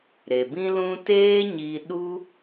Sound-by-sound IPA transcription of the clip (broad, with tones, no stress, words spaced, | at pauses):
ɾe˨bĩ˦lũ˦ teː˦ɲi˧ ɗu˦